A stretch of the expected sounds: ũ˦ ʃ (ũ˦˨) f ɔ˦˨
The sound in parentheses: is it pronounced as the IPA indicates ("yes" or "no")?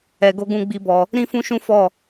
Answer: no